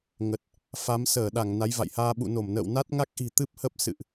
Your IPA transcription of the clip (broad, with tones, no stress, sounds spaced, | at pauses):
ŋ ə˨˩ t̚ | f a˨˦ m s əː˧˩ ɗ a˧˩ ŋ n a˨˦ j v a̰˧˨ j h aː˧ ɓ ṵ˧˨ n o˧˩ m n ə̰ː˧˨ w n a˦˥ t̚ ŋ a˦˥ k̚ ʔ i̤˨˩ t̪ ɨ˦˥ p̚ h ə˦˥ p̚ s ɨ̰˧˨ ʔ